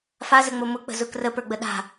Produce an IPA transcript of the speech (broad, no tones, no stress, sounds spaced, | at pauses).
f a z ə ŋ͡m o m ʊ k͡p ə̤ z ʊ k r ə p ə˞ ɡ͡b ə ɗ a̤